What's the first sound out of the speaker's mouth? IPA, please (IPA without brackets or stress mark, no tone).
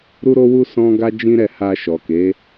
ɾ